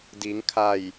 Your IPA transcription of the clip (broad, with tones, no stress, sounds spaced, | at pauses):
d iː˩˧ ŋ kʰ a˧˩ j